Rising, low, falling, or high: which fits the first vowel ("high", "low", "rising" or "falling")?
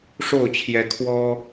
falling